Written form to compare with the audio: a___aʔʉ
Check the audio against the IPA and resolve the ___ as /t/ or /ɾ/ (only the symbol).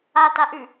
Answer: t